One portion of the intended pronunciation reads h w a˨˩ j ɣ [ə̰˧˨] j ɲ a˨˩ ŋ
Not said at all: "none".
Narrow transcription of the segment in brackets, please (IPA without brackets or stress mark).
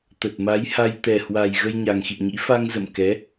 ə˧